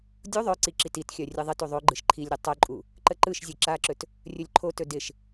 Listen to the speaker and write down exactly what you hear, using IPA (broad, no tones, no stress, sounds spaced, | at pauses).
dʲ u ðˤ œ ǀ i ǁ i t i t xʲ œ rʲ ɯ ðˤ ɪ t u ðˤ o ɡ͡ǃ ɯ ʃ ǃʰ i lʲ ɾʲ ə tˤ œ ǃʼ u | ǃ ə ǃ ɯ ʃ zʲ ɯ ǁ a ǁ ɵ t | rʲ ɵ lʲ ǃʰ o t ɵ d ɪ ʃ